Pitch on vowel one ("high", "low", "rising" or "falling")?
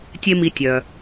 high